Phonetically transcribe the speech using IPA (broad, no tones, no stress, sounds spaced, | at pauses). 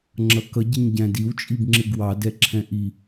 ŋ͡ǁ ʌ k ʌ ɟ ɪ ɲ ɟ æ̃ d i w t͡ʃʼ i b ŋ͡ǁ ɪ ɡ w ɑ d ɛ ǁʰ ɛ̃ ʔ i